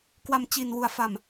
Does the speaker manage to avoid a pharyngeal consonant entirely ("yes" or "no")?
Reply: yes